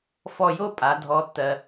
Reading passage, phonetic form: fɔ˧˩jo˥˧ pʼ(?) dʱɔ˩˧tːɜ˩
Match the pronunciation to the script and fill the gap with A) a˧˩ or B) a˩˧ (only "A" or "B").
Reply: B